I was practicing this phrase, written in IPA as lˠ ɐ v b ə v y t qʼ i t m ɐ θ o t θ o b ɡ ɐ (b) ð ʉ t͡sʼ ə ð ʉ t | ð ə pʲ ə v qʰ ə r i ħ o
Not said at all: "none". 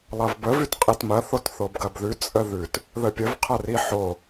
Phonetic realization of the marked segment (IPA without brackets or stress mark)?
b